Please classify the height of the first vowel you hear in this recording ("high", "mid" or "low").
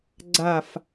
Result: low